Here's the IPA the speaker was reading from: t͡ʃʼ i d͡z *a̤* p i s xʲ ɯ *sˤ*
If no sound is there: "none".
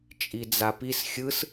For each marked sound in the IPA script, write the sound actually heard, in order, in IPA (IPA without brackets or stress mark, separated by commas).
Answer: a, s